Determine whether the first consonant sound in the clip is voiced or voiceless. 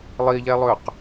voiced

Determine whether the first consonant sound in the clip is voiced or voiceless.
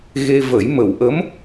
voiced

